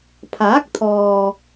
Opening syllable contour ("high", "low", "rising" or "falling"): rising